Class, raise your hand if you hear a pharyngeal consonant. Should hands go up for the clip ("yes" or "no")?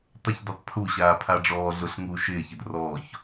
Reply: no